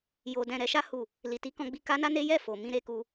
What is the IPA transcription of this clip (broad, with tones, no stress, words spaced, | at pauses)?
jo˧dɛ̃˧ ɾɛ˧ʃa˦ hu˦˨ | li˨ti˨˦kɔ̃˧ɡ͡bi˧ ka˦na˦ne˦ jɛ˦˨fo˨ mĩ˧ɾe˧ku˧